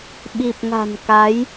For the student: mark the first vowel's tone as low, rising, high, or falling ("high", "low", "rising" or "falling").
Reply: low